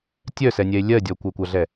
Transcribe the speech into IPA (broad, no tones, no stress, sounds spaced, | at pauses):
tʲ œ s ɛ nʲ ɛ e̯ lʲ ɜ dʲ ɔ kʷ ɜ kʷ a ɮ ɛ